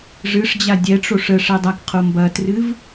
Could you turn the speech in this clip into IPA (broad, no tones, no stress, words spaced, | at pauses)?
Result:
ʐɨʂd͡ʑa dʲɛʈ͡ʂoʂ ə ʂɛdˤakqʰo mbɐtrɨv